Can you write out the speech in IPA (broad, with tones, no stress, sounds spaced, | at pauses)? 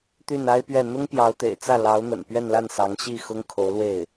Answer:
t̪ y˥˩ n a˥ ɪ̯ p ɥ ɛ˥˩ n̪ ʊ˥ ŋ p j ɑ˧˥ ʊ̯ t̪ ḛ˨˩ ɪ̯ t͡s ä˥˩ l ɑ˧˥ ʊ̯ n̪ ə̰˨˩ n p ɥ ɛ˥˧ n l a˥˩ n s ɑ˧˥ ŋ ɕ i˥˩ x ʊ˥ ŋ kʰ o˧˥ ʊ̯ l w e˥˩ ɪ̯